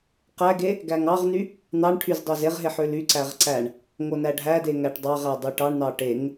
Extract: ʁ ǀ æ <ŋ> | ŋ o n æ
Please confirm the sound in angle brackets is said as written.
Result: no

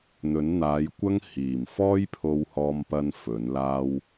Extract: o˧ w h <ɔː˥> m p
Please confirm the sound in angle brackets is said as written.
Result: yes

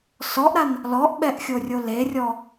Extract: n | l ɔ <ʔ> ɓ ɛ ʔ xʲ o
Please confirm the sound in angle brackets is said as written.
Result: yes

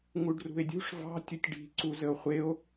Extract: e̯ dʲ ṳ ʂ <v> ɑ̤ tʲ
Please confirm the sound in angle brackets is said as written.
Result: yes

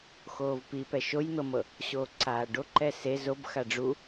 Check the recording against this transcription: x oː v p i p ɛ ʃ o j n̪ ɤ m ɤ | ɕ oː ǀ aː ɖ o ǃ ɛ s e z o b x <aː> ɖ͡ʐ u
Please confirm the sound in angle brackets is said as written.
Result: no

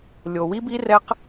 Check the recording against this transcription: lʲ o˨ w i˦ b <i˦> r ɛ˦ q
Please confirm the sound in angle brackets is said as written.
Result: yes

